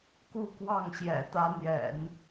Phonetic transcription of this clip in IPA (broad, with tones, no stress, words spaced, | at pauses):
ku˥˧kwɑ˥˩ŋɕjɛ̰˨˩ t̪ä˥n̪jɛ̰˨˩˦n